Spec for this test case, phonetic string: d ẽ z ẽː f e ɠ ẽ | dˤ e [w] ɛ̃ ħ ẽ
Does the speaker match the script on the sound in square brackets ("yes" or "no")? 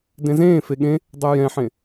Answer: no